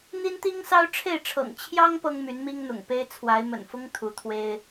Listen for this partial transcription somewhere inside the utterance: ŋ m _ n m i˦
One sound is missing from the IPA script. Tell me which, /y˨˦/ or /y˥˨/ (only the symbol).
y˨˦